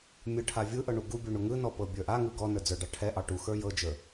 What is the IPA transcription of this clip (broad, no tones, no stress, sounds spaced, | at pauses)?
mʲ ɯ ʈʰ a vʲ ɯ ʔ ɤ ɳ u ɡ u bʲ u ɳ u ŋ ɯ n ɔ p ɤ bʲ ə˞ ʔ a ŋ ɯ ɡ ɔ n ə˞ d͡z ə˞ ɖ ɑ ʈʰ ɛ ʔ ɑ ʈ u x ə˞ j ɤ d͡ʒ ə˞